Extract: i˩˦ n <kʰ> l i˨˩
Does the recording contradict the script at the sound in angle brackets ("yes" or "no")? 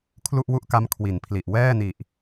yes